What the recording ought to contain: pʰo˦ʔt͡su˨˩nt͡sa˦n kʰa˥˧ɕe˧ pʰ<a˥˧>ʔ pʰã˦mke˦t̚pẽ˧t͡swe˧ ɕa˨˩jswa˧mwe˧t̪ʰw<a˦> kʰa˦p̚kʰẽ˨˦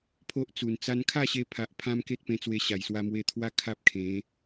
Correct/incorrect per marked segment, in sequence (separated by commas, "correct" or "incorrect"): incorrect, correct